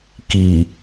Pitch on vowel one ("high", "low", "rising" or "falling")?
low